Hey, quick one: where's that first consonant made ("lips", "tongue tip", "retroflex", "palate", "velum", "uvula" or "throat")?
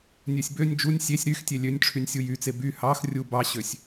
tongue tip